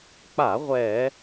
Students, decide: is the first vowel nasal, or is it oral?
oral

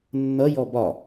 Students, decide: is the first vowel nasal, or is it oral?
oral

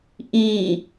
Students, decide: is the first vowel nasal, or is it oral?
nasal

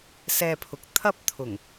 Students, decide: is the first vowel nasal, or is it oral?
oral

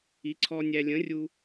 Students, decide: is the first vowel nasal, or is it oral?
oral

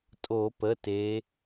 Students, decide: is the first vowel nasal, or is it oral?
oral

